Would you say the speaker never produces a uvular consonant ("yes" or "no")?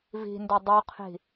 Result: no